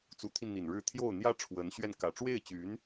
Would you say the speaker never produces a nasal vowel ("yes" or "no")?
yes